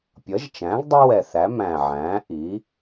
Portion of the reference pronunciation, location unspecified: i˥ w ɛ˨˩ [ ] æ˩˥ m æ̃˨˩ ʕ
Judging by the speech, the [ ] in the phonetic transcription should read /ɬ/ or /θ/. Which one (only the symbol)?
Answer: θ